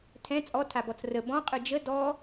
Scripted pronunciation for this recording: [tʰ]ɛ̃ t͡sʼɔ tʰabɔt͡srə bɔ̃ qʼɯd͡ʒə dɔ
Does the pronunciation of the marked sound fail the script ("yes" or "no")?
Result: no